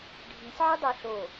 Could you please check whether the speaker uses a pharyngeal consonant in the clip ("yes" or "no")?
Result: yes